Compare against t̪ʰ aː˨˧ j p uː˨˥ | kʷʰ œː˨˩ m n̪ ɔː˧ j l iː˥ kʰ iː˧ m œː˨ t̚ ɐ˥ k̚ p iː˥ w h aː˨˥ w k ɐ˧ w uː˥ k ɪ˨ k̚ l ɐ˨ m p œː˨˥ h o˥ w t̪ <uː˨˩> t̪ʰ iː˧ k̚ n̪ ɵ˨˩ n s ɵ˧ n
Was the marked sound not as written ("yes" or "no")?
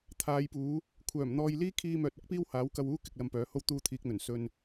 yes